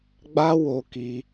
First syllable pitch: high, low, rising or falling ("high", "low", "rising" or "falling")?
high